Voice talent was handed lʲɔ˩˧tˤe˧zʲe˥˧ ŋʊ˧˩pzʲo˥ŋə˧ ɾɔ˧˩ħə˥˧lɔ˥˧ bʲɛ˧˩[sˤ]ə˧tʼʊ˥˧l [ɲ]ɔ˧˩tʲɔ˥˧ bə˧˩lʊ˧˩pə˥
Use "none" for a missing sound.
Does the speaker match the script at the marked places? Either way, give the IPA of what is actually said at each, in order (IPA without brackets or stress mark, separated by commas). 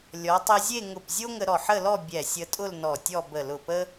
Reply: sʲ, n